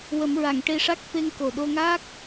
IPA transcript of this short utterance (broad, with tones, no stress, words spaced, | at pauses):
wə˨˩˦mɹa˨˩˨ŋ ʈe˧ʂa˦˥k̚ fe˧ŋko˨˩ɗo˧ŋaː˦˥k̚